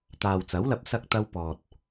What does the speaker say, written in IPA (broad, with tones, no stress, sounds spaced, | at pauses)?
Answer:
t̪ aː˨ w t͡s ɐ˨˥ w l ɐ˧ p̚ s ɐ˥ k̚ t̪ ɐ˥ w p ɔː˨ t̚